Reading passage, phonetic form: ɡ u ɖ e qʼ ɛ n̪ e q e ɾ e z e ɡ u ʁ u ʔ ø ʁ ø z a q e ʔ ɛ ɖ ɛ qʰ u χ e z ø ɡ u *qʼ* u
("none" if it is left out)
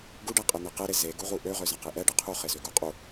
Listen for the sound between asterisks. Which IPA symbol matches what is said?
qʼ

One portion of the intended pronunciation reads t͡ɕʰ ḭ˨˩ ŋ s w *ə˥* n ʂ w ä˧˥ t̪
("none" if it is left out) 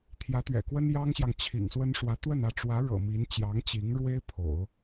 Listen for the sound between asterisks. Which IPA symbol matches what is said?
ə˥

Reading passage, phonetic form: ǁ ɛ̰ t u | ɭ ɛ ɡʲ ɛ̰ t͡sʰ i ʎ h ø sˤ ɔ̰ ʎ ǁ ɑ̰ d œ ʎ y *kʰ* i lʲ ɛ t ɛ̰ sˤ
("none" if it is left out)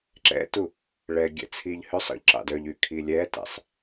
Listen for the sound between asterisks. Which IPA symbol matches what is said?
kʰ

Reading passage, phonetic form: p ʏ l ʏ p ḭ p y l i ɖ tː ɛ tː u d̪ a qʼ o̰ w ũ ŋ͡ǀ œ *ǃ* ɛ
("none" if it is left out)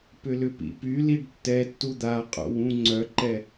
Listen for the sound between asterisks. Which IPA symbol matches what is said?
ǃ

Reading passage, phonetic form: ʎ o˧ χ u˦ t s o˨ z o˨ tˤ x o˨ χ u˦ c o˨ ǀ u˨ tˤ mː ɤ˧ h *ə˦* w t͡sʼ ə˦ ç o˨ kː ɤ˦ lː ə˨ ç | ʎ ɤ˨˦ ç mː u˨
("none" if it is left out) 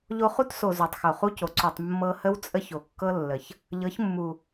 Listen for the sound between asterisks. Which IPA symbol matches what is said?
ə˦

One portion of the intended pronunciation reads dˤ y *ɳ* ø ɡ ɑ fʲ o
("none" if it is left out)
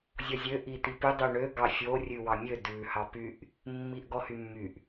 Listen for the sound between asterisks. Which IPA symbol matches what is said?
ɳ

